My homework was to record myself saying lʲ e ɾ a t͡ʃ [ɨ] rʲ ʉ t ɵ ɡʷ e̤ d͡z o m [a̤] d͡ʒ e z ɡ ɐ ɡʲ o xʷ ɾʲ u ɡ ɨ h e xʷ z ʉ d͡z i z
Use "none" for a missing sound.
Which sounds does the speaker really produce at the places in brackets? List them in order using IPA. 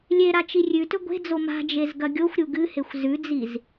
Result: i, a̤

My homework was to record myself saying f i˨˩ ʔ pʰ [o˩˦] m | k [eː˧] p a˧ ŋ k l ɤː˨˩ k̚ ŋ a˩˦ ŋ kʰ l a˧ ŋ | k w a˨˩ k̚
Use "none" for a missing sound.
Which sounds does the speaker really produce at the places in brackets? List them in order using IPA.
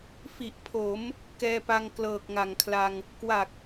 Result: o˩˦, ɛː˧

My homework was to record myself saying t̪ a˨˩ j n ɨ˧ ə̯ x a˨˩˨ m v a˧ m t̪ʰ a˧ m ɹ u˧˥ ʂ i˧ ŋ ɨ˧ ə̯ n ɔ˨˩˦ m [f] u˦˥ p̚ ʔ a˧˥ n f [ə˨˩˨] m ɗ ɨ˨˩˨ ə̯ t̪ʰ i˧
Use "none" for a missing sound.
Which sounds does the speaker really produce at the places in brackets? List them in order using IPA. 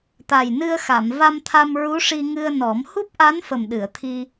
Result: h, ə˨˩

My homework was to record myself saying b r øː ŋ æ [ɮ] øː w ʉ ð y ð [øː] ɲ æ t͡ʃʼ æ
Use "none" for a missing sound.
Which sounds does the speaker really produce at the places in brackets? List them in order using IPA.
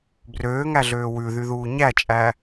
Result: ɮ, uː

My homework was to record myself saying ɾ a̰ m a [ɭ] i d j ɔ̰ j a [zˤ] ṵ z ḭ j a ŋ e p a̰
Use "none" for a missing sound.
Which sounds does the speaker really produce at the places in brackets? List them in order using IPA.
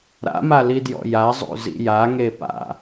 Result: l, zˤ

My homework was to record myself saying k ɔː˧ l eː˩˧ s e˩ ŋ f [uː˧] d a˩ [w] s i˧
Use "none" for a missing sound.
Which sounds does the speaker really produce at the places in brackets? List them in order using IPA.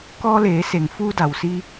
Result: uː˧, w

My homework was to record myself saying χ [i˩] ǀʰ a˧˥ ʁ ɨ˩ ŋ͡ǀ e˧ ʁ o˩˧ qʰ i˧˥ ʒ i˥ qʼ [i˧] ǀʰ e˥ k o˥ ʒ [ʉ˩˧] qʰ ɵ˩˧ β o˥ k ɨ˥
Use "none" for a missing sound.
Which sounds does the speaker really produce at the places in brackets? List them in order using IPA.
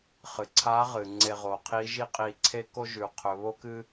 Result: ɨ˩, i˧, ʉ˩˧

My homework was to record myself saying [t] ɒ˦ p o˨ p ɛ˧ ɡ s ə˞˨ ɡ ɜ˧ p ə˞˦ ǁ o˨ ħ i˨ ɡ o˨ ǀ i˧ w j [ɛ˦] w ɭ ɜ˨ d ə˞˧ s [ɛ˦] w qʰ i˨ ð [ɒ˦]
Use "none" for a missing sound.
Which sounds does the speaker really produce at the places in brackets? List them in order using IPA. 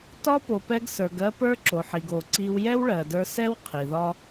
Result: t, ɛ˦, ɛ˦, ɒ˦

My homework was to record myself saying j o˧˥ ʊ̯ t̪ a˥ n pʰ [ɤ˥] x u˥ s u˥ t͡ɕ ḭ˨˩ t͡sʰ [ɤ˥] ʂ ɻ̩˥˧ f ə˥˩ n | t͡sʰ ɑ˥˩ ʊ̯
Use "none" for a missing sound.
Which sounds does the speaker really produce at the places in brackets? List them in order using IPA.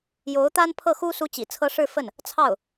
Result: ɤ˥˩, ɤ˥

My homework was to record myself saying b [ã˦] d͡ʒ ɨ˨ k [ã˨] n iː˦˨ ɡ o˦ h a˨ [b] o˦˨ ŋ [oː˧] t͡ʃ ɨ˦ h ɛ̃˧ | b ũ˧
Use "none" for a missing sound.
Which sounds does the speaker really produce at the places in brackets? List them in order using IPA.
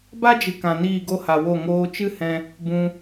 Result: a˦, ã˨, w, oː˧

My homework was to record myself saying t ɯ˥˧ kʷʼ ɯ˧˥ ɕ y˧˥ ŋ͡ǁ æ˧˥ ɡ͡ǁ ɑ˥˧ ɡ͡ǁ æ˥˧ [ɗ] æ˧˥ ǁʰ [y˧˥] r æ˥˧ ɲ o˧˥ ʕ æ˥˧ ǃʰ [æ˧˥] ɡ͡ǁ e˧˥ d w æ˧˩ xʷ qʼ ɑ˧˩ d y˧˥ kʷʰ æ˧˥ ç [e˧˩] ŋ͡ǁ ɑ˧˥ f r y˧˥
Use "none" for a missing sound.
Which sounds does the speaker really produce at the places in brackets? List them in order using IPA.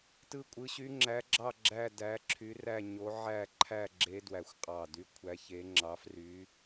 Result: d, y˧˥, æ˥˧, e˧˥

